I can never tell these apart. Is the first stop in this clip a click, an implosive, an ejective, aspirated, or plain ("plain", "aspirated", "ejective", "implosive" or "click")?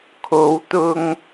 aspirated